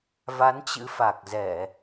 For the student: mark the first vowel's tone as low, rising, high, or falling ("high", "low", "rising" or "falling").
rising